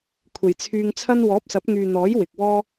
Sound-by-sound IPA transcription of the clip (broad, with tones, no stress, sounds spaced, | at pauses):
kʷʰ e˨˩ j t͡sʰ yː˧ ŋ t͡sʰ ɐ˥ n w ɔː˨˥ p̚ s ɐ˨˥ p̚ ŋ yː˨ n̪ ɔː˨˥ j w ɪ˨ k̚ w ɔː˥